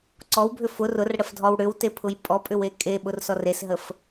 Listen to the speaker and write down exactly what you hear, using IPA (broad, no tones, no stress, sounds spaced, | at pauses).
ǀ ɔ w bʱ ʏ f ʊ r ʊ r ɽ ə f dʱ ɔ w ɽ ʏ w t e pʰ ʊ j pʼ ɔ pʼ ʏ w e kʼ e ɓ ʊ r s ɔ r e s ɦ ə f